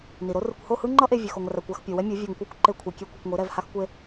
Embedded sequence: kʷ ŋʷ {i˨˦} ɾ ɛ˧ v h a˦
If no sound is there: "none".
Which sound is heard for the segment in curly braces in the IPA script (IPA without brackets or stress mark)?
i˨˦